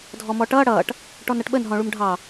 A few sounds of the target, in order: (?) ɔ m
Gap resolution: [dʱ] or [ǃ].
dʱ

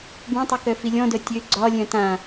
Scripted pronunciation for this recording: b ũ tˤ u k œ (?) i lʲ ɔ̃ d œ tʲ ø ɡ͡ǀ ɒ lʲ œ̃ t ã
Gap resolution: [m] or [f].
f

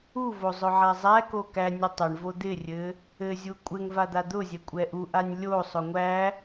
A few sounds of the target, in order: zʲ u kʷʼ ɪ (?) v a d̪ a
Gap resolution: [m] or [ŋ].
ŋ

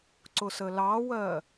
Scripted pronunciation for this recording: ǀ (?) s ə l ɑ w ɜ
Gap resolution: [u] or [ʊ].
ʊ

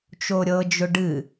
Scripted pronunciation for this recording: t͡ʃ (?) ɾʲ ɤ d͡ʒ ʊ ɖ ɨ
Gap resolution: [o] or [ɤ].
o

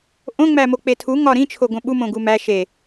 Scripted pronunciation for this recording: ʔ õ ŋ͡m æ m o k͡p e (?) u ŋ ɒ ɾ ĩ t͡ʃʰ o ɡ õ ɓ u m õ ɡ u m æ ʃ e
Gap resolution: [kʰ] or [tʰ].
tʰ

